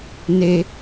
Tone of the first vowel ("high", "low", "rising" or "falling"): high